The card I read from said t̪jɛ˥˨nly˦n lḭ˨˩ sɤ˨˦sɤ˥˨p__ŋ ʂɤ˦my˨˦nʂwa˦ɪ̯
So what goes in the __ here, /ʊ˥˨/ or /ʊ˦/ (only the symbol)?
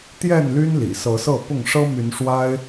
ʊ˥˨